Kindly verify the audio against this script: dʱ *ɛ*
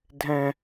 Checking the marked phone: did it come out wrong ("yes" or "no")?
yes